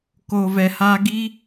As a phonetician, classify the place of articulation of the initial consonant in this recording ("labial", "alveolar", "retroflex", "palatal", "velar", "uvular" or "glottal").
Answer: velar